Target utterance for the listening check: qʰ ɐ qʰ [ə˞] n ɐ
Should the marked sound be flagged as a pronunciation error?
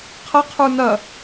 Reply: no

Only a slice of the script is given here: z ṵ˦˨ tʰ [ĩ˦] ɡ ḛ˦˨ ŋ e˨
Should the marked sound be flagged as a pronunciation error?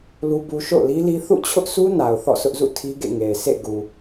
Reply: yes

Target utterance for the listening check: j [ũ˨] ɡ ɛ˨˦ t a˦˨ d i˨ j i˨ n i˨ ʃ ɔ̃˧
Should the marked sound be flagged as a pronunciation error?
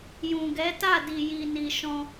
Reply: no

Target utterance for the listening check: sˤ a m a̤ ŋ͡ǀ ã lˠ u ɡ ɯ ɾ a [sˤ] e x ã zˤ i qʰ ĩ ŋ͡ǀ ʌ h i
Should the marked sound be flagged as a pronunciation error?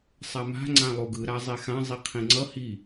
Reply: yes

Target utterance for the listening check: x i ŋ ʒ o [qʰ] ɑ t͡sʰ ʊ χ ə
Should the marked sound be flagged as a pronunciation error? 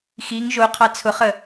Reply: no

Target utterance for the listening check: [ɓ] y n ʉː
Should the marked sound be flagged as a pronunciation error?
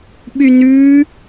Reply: no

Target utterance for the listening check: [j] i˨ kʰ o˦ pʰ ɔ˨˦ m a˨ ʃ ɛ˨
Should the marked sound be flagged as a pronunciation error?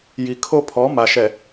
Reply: no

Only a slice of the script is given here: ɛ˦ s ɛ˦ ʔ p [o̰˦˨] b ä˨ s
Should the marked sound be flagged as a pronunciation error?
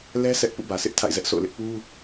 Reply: yes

